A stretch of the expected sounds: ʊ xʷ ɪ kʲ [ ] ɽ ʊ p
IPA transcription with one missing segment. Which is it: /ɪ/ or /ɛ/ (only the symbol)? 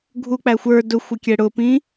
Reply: ɛ